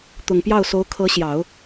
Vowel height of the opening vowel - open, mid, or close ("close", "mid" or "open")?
close